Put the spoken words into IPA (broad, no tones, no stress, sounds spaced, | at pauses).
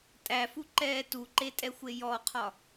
tʼ æ f u ǃ ɛː t u ǃ e tʼ ɛ xʷ e j ɔ qʰ ɒ